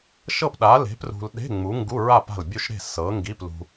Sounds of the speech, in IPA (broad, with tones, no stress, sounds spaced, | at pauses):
ʃ ɤ˥˨ p ɗ a˨˥ l e̤˨˥ p r ṳ˧ l ɗ e̤˧˥˧ ŋ͡m u˨˥ ŋ ɡ u˧˥˧ ɹ a˥˨ p a̤˥˨ l bʲ u˥˨ ʃ ɾ e̤˥˨ s ɤ˨˥ ŋ ɡ i˧˥˧ p l ṳ˥